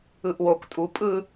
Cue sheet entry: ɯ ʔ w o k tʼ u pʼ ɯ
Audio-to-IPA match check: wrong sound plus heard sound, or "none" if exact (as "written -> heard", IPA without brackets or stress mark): none